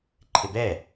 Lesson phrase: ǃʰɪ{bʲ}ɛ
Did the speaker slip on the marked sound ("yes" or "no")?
yes